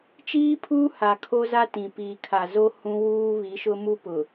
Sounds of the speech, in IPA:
t͡ʃ iː˦ pʰ uː˦ h a˨ kʰ o˦ z a˦ t ĩ˨ p iː˨ kʰ a˨ z o˦ h ũ˦ w uː˦ β i˨˦ ʃ ʊ˦ m u˦ p ʊ˨

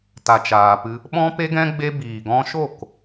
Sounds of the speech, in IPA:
t a˨ t͡ʃ aː˨ p ɨ˧ | ɓ ɔ̃˦ p e˦ ɡ ɛ̃˦ ɡ͡b e˦ b iː˨ ɡ ɔ̃˦ ʃ o˦˨ k

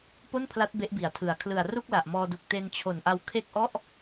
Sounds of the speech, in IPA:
p o˥˩ n pʰ l a˦˥ t̚ b e˦˥ ʔ b i˩˦ a̯ tʰ ɯ˨˩ a̯ kʰ l ɯ˨˩ a̯ r u˥˩ k̚ l a˨˩ ʔ m ɔː˧ d u˨˩ k̚ t e˧ n t͡ɕʰ o˨˩ n ʔ a˧ w kʰ e˥˩ k̚ ʔ ɔ˥˩ ʔ

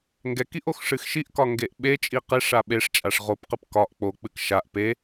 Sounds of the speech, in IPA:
ŋ ɡ ɛ k i ʔ o x ʂ ɨ x ʃ i ʔ k ɒ ŋ ɡ e ʔ ɓ e t͡ʃʼ i q e ʂ a ɓ e ʂ t͡ʃʼ a ʂ ʁ o p q ɨ p k ɒ ʔ k͡p o k͡p ɨ k ʃ a ʔ p e

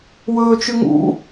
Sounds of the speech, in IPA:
w ɵː t͡ʃ ʉ ŋ ṵ

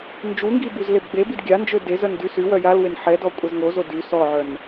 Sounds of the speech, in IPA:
n d͡ʒ u ŋ ɡ i b u z l e b ɡ͡b e b i d ɡʲ a n d͡ʒ ø d e z œ n d y s y w œ j a l w e n ħ ɛ d ɔ kʷʼ ɛ z ŋ o z o d y s ɔ ʕ œ n

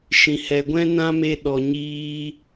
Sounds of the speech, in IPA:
ʃ ĩ˨ h ɛ˨ ɡʷ ɛ̃˦ n ã˦ m e˧ ɗ ɔ˨ ɲ iː˧

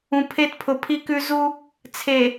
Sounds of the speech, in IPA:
ũ˨ pʰ e˦ t pʰ ʊ˨ pʰ i˦ k ʉ˦ z u˦ | t͡sʰ e˨

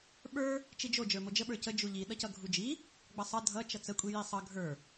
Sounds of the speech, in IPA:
ɓ ə˞ | t͡ʃ i d͡ʒ o d͡ʒ ə˞ m o d͡ʒ ə ɓ ə˞ c ə d͡ʒ u ʎ i ɗ ʌ c ʌ ɡʱ u d͡ʒ i | ɡ͡b ʌ sˤ ʌ dʱ ʌ t͡ʃ ʌ t͡s ə kʷʼ i j i sˤ ʌ ɡʱ ə˞

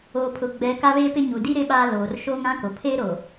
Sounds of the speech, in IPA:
oː˨ pʰ ʊ˨ ɡ͡b ɛ˨˦ k a˦ β e˦ p ɪ˦ ɲ u˨ d i˦ ɾ ɪ˦ ɓ aː˦ l oː˨ r ʃ oː˦ ŋ ã˦ k o˨ pʰ e˦ ɾ o˨

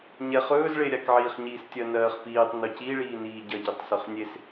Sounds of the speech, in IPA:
ɲ ɛ χ ɵː z ɭ e ɾʲ a k ʕ iː χ ɲ iː s tʲ ɜ n ɜː χ p iː tˤ n ɵ c i ɭ iː n iː ɟ ɜ ɟ i tˤ s ɵ χ nʲ e s

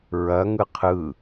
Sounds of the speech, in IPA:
ɹ ɐ ŋ ɯ qʰ ɯ

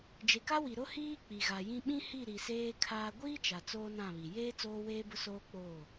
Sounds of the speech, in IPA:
d͡ʒ e˨ k a˦ w i˨ ɾ ʊ˦ h iː˦ k͡p i˨ ɣ a˨ j ĩ˦ ɓ ĩ˦ h i˦˨ ɾ i˨ s eː˦ kʰ aː˦ ɡʷ iː˦ t͡ʃ a˨ t͡s oː˦ n ã˦˨ β i˨ j eː˦ t͡s oː˦ w eː˦ b ʊ˦ s oː˦ k͡p oː˦˨

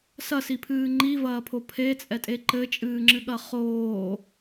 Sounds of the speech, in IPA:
s ɐ s i pʰ ɨː ŋ͡ǃ i v ɐː pʰ o pʰ e t͡sʼ ɛ tʼ e ǃ ɘ t͡ʃʼ ɨː ŋ͡ǁ ɨ ɠ ɐ χ oː

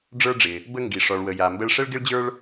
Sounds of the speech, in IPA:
ɖ͡ʐ ə˞˧ ɖ͡ʐ ɪ˩ | b ə˧ ŋ ɡ i˩ ʂ ɔ˩ ɭ w ə˩ j a˩ m b ə˧ ɭ ʂ ə˥ ɭ ɡ ɪ˥ ɭ d͡ʑ ə˞˥ ɭ

